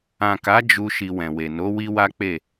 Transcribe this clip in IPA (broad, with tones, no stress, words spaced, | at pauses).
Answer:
ã˨ka˨˦ d͡ʒu˧ ʃi˧wɛ̃˨we˨ no˨˦wi˦wa˦k͡pe˦˨